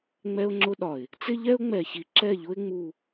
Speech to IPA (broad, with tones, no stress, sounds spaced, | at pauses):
ŋ͡m ɛ˦ ʊ̯ ŋ͡ǁ ʊ˦ ɗ ɒ˨ ɪ̯ | t͡s ɪ˦ ʎ ɛ˦ ʊ̯ ŋ͡m ɛ˨ ç i˨ ǁ ɛ˦˨ ʎ ʊ˦ ɪ̯ ŋ͡m u˨